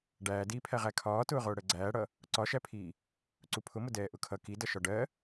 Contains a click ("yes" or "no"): yes